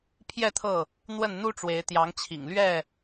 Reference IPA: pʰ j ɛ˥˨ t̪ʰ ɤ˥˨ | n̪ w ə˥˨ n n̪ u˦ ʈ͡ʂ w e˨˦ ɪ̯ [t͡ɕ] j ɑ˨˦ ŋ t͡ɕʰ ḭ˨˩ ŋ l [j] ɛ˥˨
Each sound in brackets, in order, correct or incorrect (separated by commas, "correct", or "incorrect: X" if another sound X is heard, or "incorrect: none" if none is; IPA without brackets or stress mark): incorrect: t̪, incorrect: ɥ